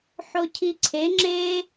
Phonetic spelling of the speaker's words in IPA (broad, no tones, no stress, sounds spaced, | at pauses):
ħ o cʰ i ǀʰ e ŋ͡ǁ e